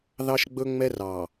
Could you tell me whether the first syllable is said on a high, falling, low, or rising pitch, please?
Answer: high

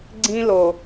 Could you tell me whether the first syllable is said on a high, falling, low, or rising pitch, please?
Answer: high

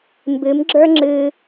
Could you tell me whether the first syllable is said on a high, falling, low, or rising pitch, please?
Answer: rising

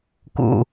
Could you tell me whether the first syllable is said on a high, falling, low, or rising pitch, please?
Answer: low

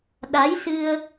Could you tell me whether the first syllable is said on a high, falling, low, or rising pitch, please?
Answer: rising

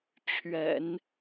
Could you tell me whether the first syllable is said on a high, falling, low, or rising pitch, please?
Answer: low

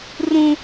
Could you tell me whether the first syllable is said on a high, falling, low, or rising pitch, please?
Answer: high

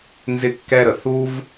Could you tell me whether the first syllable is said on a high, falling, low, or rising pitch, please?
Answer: high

